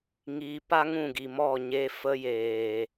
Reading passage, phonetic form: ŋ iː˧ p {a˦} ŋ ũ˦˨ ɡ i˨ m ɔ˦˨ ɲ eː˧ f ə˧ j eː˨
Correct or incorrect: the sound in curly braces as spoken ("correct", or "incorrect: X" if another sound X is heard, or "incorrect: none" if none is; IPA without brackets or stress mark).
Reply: correct